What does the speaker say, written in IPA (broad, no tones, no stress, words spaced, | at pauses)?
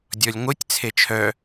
dʲɔlʲŋʷɨtʲ t͡sʰet͡ʃʰœ